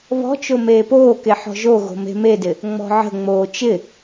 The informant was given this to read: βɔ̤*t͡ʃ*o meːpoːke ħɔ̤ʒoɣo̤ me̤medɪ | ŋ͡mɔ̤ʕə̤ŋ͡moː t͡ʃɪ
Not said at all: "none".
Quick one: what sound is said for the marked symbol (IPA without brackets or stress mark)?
t͡ʃ